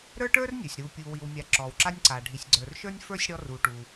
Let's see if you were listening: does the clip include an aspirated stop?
no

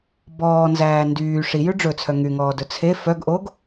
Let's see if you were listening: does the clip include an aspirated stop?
yes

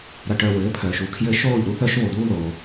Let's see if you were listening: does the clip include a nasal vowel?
no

